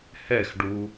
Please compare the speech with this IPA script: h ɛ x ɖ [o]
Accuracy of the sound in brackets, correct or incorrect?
incorrect